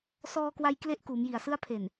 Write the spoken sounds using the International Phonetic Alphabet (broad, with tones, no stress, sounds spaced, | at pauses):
s ɔː˧ k w a˧ j k l e˥˩ ʔ k uː˩˦ m j i˨˩ a̯ s ɯ˥˩ a̯ pʰ e˨˩ n